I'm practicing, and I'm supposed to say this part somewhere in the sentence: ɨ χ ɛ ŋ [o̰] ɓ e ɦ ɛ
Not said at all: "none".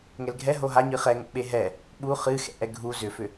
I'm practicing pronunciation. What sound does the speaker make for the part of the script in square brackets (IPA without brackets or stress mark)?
o̰